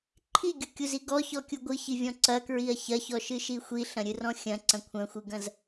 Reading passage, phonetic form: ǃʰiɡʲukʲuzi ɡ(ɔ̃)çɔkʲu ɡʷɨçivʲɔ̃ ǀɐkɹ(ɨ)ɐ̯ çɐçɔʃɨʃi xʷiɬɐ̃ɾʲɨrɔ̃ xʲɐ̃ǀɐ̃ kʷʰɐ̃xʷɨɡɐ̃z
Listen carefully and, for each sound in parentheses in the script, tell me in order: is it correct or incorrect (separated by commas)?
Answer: incorrect, incorrect